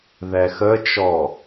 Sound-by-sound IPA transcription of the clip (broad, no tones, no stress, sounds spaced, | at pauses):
ð ɛ x ə t͡ʃ ɔ